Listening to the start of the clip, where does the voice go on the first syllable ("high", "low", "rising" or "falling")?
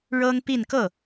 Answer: high